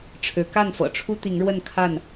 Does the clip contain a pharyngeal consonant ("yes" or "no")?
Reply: no